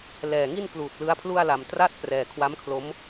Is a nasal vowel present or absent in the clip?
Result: absent